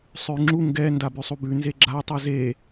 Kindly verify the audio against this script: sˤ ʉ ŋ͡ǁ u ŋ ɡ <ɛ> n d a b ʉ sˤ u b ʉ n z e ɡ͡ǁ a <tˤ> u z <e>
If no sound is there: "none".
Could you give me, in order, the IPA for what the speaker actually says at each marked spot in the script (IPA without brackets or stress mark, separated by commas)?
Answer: ɛ, tˤ, e